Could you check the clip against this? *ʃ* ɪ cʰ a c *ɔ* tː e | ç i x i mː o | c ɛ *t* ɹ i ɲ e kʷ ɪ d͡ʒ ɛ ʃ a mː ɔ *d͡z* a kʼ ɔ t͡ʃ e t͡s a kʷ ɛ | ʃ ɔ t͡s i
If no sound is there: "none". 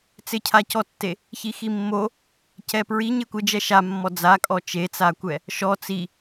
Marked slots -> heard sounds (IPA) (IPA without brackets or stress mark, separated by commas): t͡s, ɔ, p, d͡z